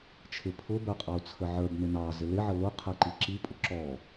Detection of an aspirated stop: present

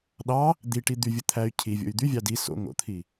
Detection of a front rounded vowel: present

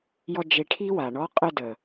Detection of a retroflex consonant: present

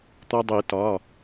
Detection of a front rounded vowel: absent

